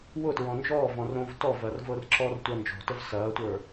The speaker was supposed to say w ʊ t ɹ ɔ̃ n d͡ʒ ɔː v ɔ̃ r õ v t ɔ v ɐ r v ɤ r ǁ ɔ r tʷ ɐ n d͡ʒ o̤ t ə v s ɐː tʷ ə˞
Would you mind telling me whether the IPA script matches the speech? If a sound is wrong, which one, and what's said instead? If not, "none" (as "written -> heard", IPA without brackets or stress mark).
none